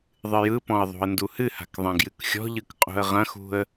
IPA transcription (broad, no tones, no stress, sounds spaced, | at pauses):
ðˤ ɨ j ɯ p ɔ̃ ə̯ ðˤ ṳ ə̯ n d u h ɨ h a̤ k ðˤ ɐ̃ ɡ j ɨ k xʲ ɔ̤ ʎ ɯ k qʼ ṳ ə̯ ʁ ɐ̃ x ṳ ə̯